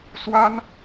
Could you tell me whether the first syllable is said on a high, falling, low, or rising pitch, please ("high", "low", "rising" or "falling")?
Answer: high